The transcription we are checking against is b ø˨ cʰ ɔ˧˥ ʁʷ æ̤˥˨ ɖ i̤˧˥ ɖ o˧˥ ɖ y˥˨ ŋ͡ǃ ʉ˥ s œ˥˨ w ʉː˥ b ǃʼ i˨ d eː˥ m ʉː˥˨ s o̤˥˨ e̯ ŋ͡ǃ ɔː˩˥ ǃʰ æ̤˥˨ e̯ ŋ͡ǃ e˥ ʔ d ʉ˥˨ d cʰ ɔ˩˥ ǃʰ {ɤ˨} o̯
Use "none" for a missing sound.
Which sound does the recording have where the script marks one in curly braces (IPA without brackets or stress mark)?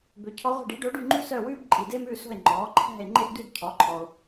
ɔ˨